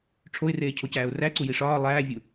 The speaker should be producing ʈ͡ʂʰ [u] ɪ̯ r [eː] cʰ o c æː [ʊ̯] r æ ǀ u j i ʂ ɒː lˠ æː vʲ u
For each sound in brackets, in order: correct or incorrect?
incorrect: o, correct, correct

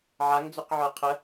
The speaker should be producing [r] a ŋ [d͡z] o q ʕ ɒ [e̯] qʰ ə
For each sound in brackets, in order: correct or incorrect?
incorrect: ʕ, correct, incorrect: ɐ̯

